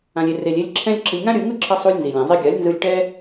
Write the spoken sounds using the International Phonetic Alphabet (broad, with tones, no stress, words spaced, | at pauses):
ã˨lʲe˨ re˨lʲ e˧lʲǁʰɛ̃˦lʲ ǁi˨lʲŋã˦ ɾʲɯ˧ ŋɯ˦ǁʰʌ˧ sˤu˧lʲ nzi˨lʲɛ̃˨ zˤe˧ ɡʲa˨˦lʲnzɯ˧lʲ ʈɛ˦